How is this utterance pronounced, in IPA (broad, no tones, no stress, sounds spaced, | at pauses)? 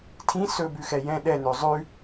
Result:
tʰ ĩ s ɵ b ʉ x ɛ j ɛ̃ ɗ ɛ n ø zˤ ʉ